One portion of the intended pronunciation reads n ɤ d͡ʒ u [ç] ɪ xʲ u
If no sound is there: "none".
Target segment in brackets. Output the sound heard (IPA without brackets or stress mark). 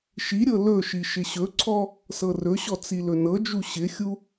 ɕ